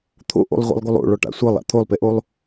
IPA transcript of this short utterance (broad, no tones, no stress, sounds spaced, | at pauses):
t̪ʰ o̰ ʔ o̰ lˠ ʁʷ ɛ̰ lˠ ɡ o lˠ o̰ ɭ ɔ ʈ a̰ sʷ ɤ lˠ a̰ t̪ʰ o lˠ p e ʔ o lˠ